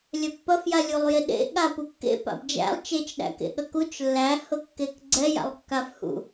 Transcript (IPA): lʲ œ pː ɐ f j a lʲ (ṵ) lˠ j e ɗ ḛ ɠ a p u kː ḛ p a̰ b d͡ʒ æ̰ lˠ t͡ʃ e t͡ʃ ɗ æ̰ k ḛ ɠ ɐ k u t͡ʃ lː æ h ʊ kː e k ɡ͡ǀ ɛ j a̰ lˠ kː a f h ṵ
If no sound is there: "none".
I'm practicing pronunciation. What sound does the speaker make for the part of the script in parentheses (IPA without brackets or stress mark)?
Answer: u